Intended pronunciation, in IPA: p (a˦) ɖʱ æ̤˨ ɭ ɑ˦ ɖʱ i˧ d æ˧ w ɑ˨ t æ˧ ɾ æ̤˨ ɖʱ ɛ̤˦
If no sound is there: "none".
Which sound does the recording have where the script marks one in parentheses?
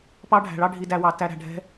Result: ɑ˦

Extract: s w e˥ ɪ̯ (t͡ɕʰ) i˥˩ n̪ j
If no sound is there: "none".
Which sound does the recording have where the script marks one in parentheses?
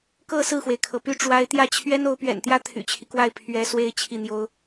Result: t͡ɕʰ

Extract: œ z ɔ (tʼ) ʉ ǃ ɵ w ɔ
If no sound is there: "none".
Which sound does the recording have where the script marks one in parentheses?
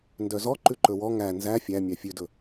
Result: ǃ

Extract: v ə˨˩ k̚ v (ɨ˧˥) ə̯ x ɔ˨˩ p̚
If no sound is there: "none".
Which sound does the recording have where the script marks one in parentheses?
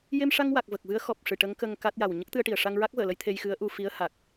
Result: ɨ˧˥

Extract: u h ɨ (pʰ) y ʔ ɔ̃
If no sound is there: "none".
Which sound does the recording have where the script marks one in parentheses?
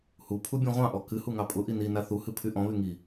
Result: pʰ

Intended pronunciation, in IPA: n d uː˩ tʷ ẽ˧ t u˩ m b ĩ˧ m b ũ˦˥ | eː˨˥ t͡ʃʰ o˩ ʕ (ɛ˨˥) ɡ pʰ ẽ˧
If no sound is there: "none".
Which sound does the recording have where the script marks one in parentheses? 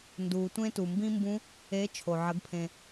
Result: ə˨˥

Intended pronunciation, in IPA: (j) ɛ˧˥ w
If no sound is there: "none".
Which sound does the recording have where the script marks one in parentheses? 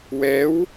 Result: w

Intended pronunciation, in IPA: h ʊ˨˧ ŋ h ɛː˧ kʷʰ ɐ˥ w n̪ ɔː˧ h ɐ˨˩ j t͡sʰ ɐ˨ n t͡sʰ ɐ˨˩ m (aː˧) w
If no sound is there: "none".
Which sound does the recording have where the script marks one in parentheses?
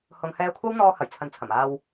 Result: aː˧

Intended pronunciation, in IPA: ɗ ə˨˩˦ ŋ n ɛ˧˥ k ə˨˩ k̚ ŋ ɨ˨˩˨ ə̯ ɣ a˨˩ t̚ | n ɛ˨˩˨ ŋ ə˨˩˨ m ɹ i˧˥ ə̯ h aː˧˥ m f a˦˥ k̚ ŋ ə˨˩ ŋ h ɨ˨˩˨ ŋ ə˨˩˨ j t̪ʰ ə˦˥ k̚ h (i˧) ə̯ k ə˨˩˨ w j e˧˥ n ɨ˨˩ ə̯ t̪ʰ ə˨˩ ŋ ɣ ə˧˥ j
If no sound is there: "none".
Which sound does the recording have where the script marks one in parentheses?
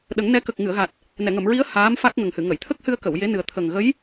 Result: ɨ˧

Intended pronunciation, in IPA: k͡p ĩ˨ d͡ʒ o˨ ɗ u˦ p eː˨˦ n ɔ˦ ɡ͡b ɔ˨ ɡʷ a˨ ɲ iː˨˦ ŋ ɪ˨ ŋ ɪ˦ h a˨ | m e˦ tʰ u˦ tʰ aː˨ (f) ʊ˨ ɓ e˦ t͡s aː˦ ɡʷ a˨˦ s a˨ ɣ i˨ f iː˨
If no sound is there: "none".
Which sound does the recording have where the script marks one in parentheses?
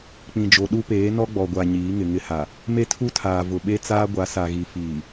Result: v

